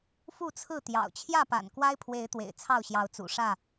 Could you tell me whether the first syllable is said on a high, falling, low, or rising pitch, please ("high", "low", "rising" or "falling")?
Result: falling